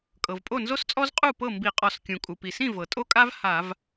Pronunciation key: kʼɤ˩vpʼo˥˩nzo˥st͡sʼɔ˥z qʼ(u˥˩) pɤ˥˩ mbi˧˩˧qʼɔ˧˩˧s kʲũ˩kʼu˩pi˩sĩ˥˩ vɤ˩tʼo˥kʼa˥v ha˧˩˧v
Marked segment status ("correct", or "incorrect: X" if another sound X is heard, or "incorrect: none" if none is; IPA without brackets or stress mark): correct